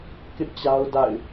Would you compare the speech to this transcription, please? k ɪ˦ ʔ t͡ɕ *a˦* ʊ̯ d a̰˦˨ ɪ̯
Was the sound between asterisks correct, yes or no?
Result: yes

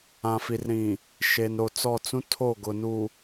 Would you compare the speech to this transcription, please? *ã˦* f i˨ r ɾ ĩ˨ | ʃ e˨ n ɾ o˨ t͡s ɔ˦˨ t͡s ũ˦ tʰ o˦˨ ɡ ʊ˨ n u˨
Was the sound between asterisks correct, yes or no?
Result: no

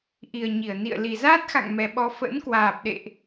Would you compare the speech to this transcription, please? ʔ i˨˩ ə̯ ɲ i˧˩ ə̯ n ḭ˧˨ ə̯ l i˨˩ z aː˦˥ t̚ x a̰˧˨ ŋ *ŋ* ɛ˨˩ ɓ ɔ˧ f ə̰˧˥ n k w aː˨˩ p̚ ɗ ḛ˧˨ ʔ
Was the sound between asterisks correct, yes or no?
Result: no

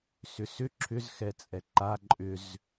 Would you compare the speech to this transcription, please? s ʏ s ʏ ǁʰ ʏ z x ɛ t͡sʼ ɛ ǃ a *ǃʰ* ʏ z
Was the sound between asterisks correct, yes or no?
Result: no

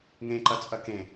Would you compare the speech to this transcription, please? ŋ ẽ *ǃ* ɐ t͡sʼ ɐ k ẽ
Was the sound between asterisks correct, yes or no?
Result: yes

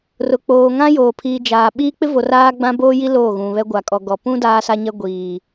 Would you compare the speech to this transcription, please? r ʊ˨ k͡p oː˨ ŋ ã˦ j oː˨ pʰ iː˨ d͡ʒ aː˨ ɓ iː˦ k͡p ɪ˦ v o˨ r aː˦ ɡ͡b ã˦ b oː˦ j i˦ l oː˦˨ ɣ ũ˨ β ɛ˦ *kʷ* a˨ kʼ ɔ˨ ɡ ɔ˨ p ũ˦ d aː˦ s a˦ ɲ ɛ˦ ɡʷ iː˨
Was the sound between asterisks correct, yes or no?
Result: no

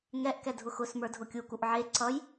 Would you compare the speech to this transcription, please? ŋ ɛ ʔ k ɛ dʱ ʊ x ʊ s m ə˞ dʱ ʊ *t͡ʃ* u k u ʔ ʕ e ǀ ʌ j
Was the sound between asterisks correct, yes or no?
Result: no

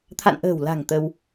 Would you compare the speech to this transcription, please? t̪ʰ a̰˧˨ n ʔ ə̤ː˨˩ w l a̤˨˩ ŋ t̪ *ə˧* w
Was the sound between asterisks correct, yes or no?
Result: yes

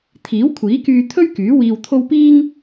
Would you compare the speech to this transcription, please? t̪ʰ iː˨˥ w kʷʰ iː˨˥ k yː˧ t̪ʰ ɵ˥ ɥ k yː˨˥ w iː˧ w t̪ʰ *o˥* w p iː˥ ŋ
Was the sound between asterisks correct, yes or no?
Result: yes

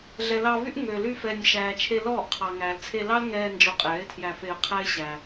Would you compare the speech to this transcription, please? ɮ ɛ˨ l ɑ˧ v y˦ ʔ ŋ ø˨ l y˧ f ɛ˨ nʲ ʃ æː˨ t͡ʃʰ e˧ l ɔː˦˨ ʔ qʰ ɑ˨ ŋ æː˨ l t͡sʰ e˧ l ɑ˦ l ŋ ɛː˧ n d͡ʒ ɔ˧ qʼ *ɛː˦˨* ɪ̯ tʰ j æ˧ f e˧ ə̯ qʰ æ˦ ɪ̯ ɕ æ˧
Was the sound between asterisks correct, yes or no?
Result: no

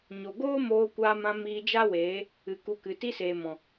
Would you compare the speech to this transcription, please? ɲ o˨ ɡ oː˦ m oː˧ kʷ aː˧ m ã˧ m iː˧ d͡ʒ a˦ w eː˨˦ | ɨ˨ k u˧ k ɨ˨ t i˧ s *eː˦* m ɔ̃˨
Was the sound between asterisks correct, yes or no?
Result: no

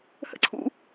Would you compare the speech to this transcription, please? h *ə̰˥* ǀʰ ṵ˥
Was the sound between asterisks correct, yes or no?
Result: yes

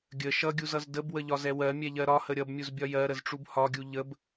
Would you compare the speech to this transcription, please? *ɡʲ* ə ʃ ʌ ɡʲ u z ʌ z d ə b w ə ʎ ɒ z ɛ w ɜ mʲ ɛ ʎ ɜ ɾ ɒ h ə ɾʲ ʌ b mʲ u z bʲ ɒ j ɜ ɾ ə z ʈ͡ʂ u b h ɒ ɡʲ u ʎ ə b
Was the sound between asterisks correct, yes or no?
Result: yes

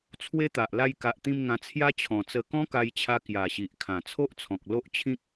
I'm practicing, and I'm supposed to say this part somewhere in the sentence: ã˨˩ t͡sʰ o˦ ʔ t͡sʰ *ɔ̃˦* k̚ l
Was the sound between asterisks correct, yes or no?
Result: no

